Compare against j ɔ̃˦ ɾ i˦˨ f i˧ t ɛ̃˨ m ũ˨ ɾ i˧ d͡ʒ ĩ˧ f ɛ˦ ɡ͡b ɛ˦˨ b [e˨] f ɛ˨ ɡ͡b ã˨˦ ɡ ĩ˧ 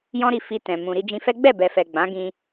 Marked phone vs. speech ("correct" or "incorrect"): incorrect